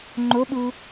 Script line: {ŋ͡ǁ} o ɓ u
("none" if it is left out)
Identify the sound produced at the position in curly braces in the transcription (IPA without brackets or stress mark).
ŋ͡ǃ